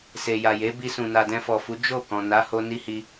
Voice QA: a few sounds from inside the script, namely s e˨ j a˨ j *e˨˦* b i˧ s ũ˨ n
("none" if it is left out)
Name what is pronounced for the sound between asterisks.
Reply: e˨˦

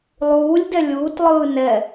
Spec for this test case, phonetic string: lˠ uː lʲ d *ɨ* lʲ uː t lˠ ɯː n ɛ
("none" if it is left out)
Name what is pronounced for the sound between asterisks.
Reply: ɛ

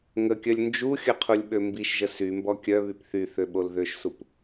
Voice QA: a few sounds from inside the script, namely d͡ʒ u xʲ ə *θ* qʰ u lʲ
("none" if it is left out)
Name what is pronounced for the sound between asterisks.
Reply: none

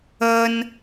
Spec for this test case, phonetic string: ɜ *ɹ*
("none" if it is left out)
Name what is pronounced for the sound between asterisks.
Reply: n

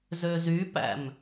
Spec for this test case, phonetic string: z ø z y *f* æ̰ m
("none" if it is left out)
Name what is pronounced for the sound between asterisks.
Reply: p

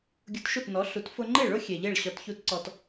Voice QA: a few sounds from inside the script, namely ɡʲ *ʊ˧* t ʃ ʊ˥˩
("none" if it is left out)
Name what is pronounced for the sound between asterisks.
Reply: ʊ˧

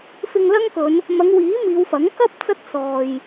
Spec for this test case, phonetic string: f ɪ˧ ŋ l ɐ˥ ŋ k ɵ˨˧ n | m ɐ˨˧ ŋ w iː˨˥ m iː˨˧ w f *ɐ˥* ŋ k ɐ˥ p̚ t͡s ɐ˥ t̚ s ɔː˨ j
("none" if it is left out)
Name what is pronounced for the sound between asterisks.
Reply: ɐ˨˥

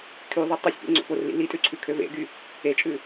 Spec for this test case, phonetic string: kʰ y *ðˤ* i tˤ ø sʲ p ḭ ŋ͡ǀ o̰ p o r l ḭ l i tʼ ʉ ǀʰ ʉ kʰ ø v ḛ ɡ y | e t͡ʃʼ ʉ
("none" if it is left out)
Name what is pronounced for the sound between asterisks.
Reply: ðˤ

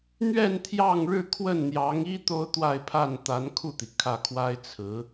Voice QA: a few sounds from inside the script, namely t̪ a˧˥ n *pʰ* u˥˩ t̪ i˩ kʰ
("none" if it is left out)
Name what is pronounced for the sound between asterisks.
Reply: kʰ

